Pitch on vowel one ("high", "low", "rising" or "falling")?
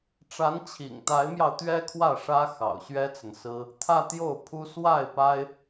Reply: rising